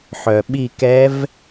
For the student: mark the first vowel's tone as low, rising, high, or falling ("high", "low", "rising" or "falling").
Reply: low